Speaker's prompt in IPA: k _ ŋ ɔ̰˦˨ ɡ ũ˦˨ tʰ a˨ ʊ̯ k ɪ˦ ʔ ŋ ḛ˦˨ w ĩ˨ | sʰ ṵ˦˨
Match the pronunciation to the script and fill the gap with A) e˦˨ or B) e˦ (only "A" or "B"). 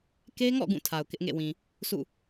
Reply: B